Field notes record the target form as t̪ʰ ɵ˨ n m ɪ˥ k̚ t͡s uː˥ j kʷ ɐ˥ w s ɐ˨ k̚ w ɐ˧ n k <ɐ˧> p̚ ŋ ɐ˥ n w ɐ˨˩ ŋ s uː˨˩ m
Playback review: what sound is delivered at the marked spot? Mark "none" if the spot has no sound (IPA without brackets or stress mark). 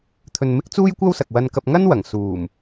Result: ɐ˧